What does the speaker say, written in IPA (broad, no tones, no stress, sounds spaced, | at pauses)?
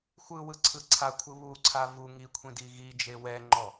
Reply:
xʷ ɯ w ɯ ǀʰ ɯ ǀʰ a kʷʰ ɯ β u ǀʰ a v u ŋ i kʷʰ ĩ d i ɣ i d͡ʒ e w ɛ ŋ͡ǃ ɔ